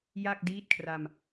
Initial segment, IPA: j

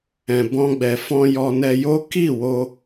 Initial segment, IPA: ɛ̃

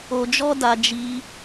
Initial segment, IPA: o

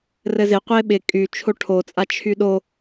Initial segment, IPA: r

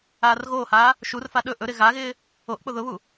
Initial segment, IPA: aː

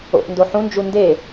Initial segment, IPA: o̰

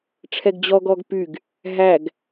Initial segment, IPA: ʈ͡ʂʰ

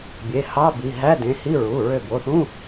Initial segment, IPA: bʲ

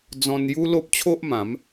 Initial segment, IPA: d͡z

